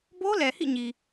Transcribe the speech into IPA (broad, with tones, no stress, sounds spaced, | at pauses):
b o˦ l ɛ˨ h ḭ˦˨ ɲ i˨